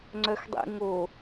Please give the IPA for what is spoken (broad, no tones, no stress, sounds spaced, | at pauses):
ŋ͡ǀ œ x dˤ ḭ ŋ o